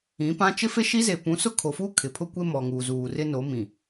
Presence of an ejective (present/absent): absent